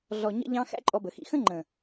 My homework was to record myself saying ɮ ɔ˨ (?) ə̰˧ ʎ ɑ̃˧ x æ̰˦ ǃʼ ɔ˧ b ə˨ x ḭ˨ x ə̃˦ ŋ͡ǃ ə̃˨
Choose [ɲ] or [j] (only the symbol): ɲ